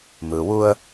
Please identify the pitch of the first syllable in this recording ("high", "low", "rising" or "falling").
low